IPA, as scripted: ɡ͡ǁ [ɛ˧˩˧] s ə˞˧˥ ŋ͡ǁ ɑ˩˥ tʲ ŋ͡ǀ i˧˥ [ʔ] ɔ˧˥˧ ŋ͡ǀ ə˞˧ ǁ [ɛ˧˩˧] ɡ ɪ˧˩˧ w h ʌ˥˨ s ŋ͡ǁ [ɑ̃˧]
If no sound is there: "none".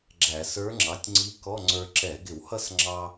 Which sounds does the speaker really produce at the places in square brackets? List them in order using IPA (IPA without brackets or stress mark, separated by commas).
æ˧˩˧, k, ɛ˧˩˧, ɑ˧